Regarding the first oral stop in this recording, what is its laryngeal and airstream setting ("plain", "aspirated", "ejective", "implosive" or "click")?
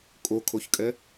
ejective